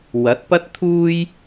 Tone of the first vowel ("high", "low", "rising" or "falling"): rising